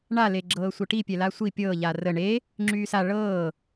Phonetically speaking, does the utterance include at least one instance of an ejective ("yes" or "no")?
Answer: no